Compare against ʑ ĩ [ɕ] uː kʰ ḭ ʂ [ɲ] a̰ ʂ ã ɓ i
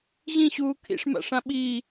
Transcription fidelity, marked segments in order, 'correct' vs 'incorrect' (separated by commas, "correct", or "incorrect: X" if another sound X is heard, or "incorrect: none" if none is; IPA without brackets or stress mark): correct, incorrect: m